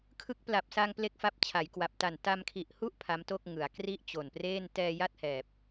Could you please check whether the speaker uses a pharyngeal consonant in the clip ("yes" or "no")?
no